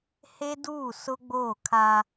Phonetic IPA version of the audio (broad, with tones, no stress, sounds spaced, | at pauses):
h e˦ d uː˦˨ s ʊ˦ ɡ͡b oː˦˨ kʰ a˦